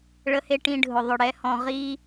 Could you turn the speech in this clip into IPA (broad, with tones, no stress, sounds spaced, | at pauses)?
ɭ ə˧ h e˧ ʈ ĩ˧ ɖʱ ʊ˧˩ ðˤ ʊ˧˩ ɽ ɛ˧ h ɔ̃˧ ʁ i˧